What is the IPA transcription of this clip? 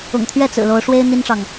ʊ̰˨˩ŋt̪ʰɥɛ˥˨ t͡sɹ̩˨˩lo˨˦ʊ̯ ʂwe˦ɪ̯ n̪i˦nʈ͡ʂɑ˨ŋ

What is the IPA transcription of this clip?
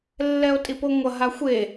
lːɛo̯tʼipoŋʷɐ ɦaxʷe

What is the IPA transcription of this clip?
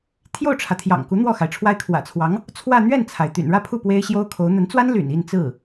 t̪ʰjo˥˩ʊ̯ʈ͡ʂʰä˩ t̪ʰjɑ̰˨˩ŋku˧˥ n̪wɔ˥˩xa˩ɪ̯ʈ͡ʂʰwa˥ɪ̯ kʰwä̰˨˩t͡sʰwɑ˧˥ŋ | t͡sʰwä˥˧ n̪ɥɛ˥˩nt͡sʰa˩ɪ̯ t̪y̰˨˩nɻä˥˧pʰu˥˩ pwe˥ɪ̯ɕjo˥ʊ̯kʰo˧˥ʊ̯ n̪ə˧˥nt͡swa˥nly̰˨˩n i˥˧nt͡sɹ̩˥˩

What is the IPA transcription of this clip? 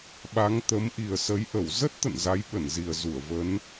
ɓa˨˦ŋt̪ə˨˦m ʔi˨˩ə̯sə˨˦jʔə˧˩w zə˦˥t̚t̪ə̰˧˨n za˨˦jɓə˧˩nzi˨˩ə̯zu˧˩ə̯ və˨˦n

